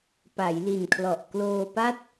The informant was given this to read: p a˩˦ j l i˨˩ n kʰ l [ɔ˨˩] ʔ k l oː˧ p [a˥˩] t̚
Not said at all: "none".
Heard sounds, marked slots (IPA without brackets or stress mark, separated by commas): ɔ˨˩, a˥˩